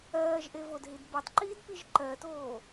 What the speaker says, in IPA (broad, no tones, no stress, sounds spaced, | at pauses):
ɜː ʒ ʔ e v o d ɦ i d b ɛ tˤ ǃ iː d p i ʒ ǃ ɜ t oː